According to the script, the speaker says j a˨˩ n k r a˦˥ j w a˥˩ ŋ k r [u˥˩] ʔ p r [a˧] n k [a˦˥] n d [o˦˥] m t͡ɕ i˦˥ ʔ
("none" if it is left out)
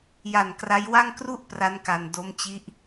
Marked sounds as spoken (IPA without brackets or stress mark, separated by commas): u˥˩, a˦˥, a˧, o˦˥